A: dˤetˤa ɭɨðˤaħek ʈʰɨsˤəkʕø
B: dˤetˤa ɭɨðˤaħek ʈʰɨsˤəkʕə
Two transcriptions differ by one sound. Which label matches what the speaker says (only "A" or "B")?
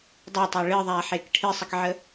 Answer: B